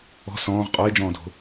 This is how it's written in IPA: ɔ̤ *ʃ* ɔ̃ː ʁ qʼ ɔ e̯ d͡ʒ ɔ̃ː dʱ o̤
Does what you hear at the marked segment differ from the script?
yes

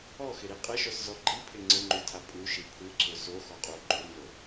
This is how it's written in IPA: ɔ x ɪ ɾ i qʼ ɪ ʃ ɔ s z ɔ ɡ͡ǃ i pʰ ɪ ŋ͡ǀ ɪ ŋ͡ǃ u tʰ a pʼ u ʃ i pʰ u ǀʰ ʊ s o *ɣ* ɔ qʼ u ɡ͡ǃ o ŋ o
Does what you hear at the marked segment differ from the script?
yes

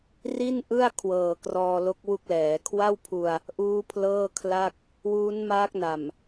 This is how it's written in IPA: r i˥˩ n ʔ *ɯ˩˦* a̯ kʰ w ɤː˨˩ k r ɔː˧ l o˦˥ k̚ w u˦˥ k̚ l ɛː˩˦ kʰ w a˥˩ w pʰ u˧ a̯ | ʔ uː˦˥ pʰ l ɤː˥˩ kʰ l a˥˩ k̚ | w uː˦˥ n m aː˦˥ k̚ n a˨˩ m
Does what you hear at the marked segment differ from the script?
yes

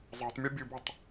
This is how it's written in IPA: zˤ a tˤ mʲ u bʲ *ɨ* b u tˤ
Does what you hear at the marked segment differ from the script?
no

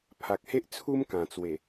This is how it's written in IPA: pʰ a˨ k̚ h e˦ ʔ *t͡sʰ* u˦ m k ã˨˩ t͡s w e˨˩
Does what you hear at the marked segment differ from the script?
no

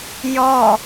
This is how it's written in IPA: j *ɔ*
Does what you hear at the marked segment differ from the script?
no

